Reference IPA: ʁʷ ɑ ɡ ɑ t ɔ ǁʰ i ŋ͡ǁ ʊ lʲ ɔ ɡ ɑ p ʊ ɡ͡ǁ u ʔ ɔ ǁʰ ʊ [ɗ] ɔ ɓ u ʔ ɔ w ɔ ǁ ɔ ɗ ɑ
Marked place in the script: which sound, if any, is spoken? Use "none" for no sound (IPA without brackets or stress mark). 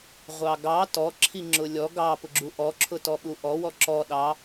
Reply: t